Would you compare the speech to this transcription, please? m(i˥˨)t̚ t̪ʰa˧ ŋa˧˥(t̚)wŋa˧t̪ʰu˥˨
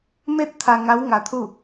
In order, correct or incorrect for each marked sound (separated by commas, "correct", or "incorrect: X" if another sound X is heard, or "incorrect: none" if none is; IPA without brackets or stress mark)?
incorrect: e˥˨, incorrect: none